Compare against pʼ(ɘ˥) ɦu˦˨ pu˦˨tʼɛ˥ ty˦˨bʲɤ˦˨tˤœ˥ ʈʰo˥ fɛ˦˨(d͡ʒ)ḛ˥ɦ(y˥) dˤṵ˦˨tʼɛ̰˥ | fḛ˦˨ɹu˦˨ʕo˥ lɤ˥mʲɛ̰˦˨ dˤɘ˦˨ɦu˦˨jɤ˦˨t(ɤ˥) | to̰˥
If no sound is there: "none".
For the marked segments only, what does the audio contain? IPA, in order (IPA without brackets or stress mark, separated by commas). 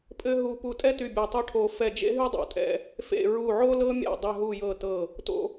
ɘ˥, d͡ʒ, y˥, ɤ˦˨